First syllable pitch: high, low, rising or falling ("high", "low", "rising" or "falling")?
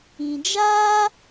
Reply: low